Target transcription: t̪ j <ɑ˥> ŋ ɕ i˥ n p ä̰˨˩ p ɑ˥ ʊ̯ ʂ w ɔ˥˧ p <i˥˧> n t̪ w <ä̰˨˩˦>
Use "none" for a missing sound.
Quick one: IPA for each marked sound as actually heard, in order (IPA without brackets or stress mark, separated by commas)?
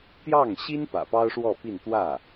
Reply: ɑ˥˩, i˥˧, ä˥˩